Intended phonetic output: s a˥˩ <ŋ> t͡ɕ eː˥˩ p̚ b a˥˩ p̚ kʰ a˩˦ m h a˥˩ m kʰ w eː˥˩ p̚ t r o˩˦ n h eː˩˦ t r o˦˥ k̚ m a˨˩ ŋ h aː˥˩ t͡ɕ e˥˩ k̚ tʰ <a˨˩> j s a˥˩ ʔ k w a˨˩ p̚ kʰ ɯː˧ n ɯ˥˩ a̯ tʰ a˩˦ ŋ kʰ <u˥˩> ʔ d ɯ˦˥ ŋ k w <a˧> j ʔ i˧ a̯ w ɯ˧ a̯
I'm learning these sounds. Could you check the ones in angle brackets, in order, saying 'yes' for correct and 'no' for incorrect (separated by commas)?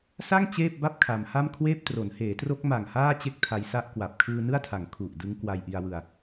yes, no, no, yes